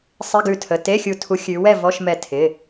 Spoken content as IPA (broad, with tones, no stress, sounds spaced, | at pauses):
sˤ ɪ˧˥˧ ɡ ʉ˧˩ tʰ ə˩˧˩ t e˧˥˧ xʲ u˧˩ tʰ u˨˦ xʲ ʉ˨˦ w ɛ˥˨ v ɔ˧˥˧ ʃ m ɛ˧˩ tʰ ɪ˩˧˩